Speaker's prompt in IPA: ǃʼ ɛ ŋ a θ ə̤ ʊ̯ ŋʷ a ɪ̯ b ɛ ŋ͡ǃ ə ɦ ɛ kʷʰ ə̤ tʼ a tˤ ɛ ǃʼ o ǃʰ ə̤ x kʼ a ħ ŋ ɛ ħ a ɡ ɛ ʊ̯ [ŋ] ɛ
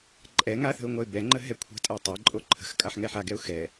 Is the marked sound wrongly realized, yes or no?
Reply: yes